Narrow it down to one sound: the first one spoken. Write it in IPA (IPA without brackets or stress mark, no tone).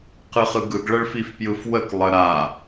q